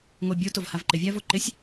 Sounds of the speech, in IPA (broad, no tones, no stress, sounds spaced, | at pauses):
ŋ o bʲ o t o v h a v ǃ ɪ vʲ a v o ǃ ɪ sʲ